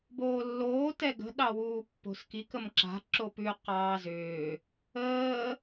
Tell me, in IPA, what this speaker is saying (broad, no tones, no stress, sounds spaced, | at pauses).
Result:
b oː lː oː t ɛ ɡ ə̤ ɗ ɑ w uː pː o̤ s k i k ə m ǁ a̤ ǁ o p ʉ q ɑː z ʏː | əː